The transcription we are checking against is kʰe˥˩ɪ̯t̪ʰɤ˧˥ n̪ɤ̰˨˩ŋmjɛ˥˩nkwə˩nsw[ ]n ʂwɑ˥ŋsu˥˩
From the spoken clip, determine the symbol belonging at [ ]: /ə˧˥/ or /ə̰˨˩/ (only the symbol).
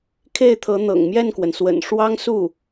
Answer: ə̰˨˩